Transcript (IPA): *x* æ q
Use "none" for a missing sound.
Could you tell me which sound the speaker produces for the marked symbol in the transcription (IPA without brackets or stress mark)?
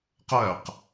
q